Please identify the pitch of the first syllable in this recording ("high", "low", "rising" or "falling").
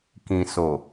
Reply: low